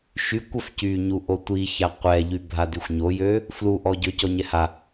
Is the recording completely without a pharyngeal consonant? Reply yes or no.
yes